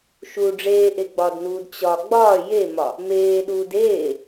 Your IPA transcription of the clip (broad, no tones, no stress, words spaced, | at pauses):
ʃu ɖ͡ʐeːʔeɡ͡bɒːdnuːd t͡ɕɒ ɡ͡bɒː jemɒ | meːɗuːd eː